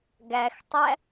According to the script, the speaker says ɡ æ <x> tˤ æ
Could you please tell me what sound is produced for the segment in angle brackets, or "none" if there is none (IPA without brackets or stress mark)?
x